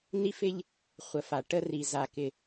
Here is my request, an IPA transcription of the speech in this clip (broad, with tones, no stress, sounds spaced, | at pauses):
n i˦ f ɪ˦ ʎ | χʷ ə˨ f a˨ ʈ ə˦ r i˨ z a˨ k ɪ˨